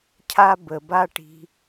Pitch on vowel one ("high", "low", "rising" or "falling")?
high